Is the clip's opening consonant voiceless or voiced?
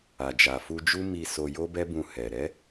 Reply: voiced